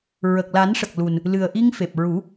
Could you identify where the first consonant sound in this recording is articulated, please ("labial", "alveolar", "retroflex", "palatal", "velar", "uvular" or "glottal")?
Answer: alveolar